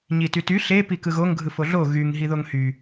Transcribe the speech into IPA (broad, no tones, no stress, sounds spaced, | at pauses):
ɲ i t y t y ɬ e p i k ɯ ɣ o ŋ ɡʱ ɯ f o ɮ o ɣ y ŋ ɦ i ð o ŋ h y